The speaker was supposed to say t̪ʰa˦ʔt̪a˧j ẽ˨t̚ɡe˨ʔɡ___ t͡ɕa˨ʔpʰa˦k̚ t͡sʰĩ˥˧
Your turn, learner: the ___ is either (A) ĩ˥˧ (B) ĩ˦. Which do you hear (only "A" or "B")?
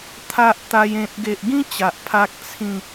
B